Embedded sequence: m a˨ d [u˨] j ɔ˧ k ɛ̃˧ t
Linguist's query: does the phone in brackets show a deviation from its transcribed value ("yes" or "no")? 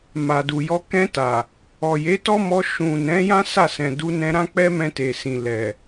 no